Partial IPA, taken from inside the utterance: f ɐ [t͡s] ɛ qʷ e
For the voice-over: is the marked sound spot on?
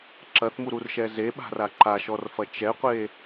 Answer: no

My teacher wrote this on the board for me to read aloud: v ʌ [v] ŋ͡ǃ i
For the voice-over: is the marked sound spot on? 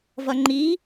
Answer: no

